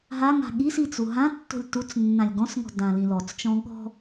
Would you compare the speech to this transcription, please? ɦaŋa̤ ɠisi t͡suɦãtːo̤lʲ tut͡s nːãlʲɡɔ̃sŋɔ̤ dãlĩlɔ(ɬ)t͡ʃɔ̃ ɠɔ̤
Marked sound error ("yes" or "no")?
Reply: yes